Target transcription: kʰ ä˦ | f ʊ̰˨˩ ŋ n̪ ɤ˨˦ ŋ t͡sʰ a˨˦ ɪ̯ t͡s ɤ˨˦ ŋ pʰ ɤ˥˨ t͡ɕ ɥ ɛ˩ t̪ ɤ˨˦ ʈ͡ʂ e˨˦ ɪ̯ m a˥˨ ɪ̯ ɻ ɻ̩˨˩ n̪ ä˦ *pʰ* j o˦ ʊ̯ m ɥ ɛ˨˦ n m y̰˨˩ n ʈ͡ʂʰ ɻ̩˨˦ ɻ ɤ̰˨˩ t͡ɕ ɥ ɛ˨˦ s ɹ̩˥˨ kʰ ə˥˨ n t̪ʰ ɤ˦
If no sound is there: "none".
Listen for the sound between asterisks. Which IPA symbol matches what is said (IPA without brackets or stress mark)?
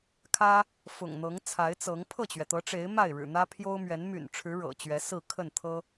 pʰ